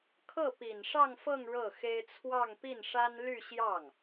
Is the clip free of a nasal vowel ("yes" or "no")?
yes